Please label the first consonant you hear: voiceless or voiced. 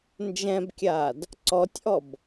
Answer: voiced